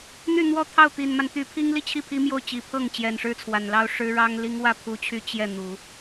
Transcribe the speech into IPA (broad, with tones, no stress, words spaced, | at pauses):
n̪y˥˧n̪wɔ˥˧t̪ʰɑ˥˩ʊ̯ t̪i˨˩nma˦nt̪y˧˥pʰi˥ŋ li˥˧t͡ɕʰi˥˩pʰi˥ mjo˥˩ʊ̯t͡ɕi˨˩pʰɤ˥˩ŋ t͡ɕjɛ˨˩nʂɻ̩˥t͡sʰwa˨˩nlɑ˥ʊ̯ ʂɻ̩˥ɻɑ˥ŋli˥ŋ wä˥˩ pʰu˥t͡ɕʰy˥˧ t͡ɕjɛ˥˩n̪u˨˩˦